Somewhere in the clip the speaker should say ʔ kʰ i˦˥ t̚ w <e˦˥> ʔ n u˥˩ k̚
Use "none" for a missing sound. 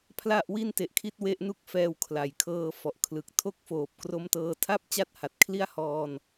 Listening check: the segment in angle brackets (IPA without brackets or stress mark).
e˦˥